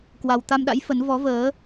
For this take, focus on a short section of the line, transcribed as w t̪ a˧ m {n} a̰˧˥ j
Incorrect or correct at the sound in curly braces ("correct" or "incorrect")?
incorrect